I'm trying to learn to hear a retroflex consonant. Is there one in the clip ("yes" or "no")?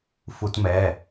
no